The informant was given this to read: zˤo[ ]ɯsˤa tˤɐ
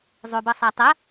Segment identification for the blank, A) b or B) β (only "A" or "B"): A